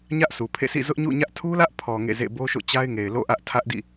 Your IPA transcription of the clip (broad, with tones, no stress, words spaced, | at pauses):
ɲä˦ʔsʰu˨pʰḛ˦˨sḭ˦˨ zʊ˦ʔɲṵ˦˨ɲä˦ʔ tʰu˦lä˦ʔpʰɔ˨ ŋḛ˦˨zḛ˦˨ bo˦ʃo̰˦˨t͡ɕa˦ɪ̯ ŋe˨ɪ̯lo̰˦˨ʔä˦ʔ tʰä˦ʔdḭ˦˨